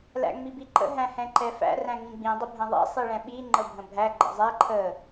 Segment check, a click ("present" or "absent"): present